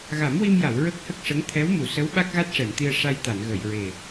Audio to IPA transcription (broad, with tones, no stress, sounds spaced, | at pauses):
ɣ a˨˩˦ m w i˧ m j a˨˩˨ w ɹ ə˦˥ k̚ h ə˦˥ k̚ ʂ ə˧˥ ŋ t̪ʰ ɛ˧˥ w m u˨˩˨ s ə˧˥ w ɓ a˦˥ k̚ ɣ a˦˥ t̚ ʂ ɛ˨˩˨ m t̪ i˧ ə̯ ʂ a˧ j t̪ a˨˩˨ n ɣ ə˨˩˨ j ɹ e˨˩